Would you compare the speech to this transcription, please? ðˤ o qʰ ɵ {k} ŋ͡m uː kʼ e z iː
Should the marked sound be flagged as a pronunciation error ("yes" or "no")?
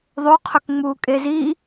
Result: no